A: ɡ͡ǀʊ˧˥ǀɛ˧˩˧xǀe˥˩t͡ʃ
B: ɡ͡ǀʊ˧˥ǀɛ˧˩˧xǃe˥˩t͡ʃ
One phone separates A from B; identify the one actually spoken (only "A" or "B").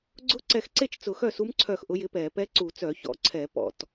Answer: A